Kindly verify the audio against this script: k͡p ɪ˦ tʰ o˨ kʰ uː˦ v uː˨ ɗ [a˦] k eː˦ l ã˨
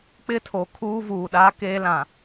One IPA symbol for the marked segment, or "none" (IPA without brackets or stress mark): a˦